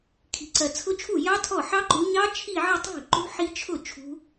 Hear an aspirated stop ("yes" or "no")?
yes